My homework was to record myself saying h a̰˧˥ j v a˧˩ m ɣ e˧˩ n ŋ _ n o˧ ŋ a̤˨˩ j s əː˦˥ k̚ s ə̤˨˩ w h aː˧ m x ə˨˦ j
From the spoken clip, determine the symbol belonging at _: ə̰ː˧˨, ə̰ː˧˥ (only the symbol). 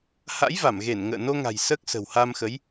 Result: ə̰ː˧˨